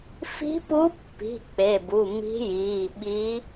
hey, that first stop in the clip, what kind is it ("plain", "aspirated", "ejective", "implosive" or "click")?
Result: plain